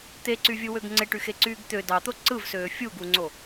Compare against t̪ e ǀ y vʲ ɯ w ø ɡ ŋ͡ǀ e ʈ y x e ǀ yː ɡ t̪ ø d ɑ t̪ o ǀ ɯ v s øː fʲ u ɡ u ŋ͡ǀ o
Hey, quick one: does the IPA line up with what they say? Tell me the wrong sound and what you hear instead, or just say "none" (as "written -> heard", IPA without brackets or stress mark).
none